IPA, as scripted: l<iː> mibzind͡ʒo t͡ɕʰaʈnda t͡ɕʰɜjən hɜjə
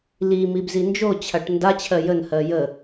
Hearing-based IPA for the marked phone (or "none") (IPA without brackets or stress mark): i